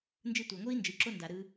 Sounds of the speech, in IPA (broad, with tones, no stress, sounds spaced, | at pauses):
n d͡ʒ ɯ˧ tʷ a˨ ŋʷ ɯ˦ i̯ n d͡ʒ ɯ˨ ǁ o˦ n d a˨ ɾ ɯ˧